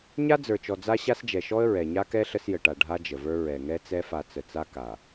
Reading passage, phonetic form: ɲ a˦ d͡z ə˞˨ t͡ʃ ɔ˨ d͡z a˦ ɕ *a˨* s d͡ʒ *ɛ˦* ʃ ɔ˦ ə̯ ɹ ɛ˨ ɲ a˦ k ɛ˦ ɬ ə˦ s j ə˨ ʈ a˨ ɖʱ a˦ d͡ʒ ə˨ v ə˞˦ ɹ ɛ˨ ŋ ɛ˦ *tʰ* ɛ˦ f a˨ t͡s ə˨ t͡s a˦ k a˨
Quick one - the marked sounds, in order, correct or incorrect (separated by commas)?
incorrect, incorrect, incorrect